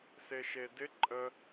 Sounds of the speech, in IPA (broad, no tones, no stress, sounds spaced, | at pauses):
s e ʃ e d ɪ ǃʼ ə